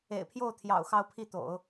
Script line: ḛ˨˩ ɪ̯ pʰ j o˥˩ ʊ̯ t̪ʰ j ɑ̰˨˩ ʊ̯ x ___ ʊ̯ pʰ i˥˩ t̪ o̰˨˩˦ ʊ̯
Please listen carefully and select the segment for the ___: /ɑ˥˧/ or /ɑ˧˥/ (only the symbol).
ɑ˥˧